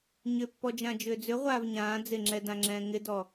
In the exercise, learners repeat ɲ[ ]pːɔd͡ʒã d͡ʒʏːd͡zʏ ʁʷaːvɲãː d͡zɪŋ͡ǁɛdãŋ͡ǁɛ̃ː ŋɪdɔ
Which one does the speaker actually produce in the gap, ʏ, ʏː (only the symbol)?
ʏ